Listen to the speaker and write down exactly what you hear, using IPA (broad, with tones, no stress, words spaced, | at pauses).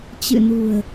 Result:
t͡ɕɨ̰˧˨nṳ˨˩ə̯